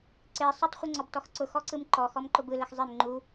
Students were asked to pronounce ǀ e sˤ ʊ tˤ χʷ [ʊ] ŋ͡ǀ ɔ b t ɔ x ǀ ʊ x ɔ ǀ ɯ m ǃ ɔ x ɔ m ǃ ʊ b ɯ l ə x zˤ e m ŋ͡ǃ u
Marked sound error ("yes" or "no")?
yes